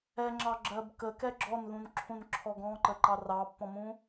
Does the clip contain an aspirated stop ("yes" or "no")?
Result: yes